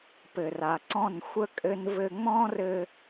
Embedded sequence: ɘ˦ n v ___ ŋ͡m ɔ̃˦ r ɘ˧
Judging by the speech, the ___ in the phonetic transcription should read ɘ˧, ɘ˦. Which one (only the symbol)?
ɘ˧